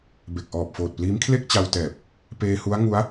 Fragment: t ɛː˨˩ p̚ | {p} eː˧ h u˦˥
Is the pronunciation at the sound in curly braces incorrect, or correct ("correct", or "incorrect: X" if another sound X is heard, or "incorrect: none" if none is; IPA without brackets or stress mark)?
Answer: correct